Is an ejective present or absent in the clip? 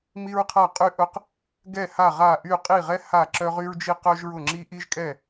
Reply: present